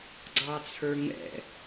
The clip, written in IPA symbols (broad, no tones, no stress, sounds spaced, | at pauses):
ɡ͡ǀ ɑ t͡sʰ ə˞ ŋ ɛ̰